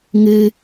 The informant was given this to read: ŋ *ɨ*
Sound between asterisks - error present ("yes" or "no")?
no